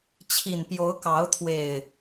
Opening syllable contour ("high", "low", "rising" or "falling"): low